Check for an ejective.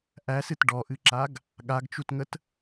absent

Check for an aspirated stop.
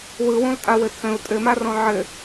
present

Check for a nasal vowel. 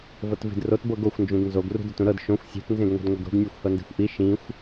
present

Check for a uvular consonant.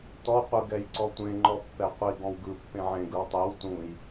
present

